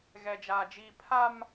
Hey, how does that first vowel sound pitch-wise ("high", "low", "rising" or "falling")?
high